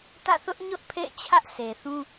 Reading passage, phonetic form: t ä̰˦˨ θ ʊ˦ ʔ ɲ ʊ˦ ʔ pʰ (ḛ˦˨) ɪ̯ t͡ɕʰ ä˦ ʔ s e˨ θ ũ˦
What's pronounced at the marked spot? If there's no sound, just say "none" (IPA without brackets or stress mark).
ḛ˦˨